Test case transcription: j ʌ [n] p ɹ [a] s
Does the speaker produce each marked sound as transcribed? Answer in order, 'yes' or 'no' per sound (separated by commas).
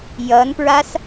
yes, yes